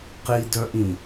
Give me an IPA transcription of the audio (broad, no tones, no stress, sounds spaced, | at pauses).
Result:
q i d œ ʔ ĩ